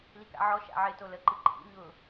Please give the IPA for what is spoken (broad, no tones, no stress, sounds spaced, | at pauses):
l i k a̰ ʕ ɔ ʃ a̰ ʕ ɪ t o l ə ǃ ɨ ǃʰ ḭ ɲ ʊ